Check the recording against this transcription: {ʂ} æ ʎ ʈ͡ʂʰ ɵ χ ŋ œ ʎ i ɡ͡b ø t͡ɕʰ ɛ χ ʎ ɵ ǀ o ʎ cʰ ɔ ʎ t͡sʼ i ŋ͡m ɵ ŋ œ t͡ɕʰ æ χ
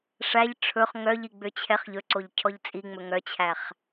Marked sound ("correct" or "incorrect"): correct